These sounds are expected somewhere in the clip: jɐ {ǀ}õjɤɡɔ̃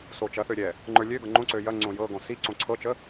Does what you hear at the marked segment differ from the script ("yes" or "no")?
yes